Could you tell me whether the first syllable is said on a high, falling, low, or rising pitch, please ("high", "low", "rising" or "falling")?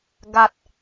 low